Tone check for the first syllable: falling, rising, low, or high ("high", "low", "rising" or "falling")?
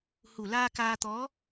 low